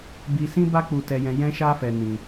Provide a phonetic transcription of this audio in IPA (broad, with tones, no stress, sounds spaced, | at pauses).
b i˧ s ĩ˦ b a˦ k͡p u˧ t ɛ˧ j ɛ̃˧ j ɛ̃˦ ʃ a˦ f ɛ˧ n ĩ˧